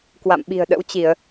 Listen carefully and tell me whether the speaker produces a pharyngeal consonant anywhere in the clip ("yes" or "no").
no